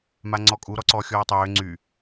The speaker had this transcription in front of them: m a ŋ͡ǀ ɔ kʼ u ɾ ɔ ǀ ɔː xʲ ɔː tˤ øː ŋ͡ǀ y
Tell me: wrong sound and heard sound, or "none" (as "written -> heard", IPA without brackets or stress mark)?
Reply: none